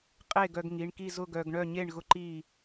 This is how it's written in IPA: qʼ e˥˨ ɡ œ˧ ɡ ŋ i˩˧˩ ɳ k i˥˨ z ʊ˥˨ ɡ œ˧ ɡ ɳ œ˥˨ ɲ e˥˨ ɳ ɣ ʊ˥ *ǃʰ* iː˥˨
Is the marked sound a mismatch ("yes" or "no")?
yes